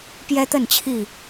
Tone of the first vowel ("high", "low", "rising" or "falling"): high